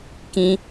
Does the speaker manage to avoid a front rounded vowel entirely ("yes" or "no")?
yes